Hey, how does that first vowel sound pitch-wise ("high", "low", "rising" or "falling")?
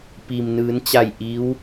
low